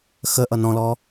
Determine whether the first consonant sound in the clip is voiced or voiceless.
voiceless